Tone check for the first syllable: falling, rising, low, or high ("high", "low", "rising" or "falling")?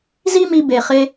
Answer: high